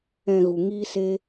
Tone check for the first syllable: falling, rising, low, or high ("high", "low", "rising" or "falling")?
low